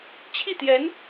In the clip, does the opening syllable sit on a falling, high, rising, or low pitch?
falling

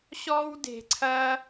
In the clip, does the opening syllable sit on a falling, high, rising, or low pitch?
high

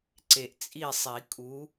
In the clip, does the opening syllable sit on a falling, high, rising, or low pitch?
low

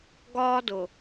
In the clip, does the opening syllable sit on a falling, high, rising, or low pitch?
high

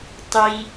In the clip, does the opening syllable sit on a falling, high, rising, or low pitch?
high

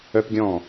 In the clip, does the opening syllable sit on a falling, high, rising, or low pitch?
high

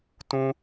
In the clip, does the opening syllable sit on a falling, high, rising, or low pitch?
high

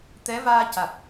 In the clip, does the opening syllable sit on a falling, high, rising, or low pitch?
rising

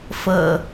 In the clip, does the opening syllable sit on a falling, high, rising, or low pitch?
low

